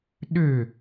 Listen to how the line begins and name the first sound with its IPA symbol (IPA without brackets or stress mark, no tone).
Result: ɗ